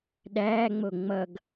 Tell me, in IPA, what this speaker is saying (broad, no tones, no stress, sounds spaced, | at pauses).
ɗ æː ŋ͡m o ŋ͡m ʌ ɡ